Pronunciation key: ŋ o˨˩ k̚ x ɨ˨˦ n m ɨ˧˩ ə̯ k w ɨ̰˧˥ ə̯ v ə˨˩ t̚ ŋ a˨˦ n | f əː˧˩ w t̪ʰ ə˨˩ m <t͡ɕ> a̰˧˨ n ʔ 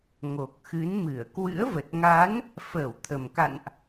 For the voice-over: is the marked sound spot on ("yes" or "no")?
no